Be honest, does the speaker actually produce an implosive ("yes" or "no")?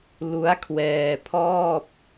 no